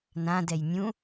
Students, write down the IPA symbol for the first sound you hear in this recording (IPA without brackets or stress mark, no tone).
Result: n